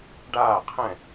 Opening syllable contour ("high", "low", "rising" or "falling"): falling